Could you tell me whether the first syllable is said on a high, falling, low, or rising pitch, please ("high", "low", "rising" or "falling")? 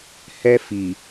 high